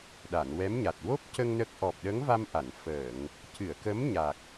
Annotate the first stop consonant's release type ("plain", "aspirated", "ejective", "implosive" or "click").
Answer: implosive